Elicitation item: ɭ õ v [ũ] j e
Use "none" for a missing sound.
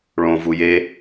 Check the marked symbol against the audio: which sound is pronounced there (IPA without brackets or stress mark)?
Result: u